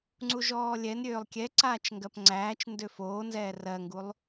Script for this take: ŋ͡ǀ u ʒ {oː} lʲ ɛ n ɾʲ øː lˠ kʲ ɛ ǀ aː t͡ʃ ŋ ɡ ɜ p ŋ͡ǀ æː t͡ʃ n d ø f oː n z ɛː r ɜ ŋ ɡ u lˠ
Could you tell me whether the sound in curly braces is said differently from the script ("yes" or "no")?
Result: yes